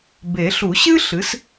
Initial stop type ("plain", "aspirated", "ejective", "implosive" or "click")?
plain